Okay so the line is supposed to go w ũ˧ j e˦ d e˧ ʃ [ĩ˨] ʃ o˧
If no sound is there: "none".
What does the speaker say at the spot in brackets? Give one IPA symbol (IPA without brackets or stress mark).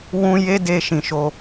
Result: ĩ˨